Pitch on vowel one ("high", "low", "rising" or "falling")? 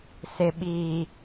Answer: low